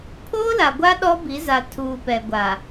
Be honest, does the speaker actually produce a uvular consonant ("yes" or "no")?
no